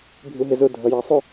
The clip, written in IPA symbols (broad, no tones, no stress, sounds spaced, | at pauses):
bʱ u ɦ ɪ z ʊ dʱ ʌ j ɑ sˤ ʊ